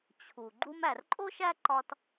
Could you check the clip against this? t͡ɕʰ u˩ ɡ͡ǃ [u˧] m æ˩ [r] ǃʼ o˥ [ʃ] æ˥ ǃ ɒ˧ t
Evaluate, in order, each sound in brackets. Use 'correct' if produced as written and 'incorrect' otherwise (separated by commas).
correct, correct, correct